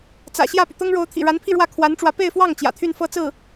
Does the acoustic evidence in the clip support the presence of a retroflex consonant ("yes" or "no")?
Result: yes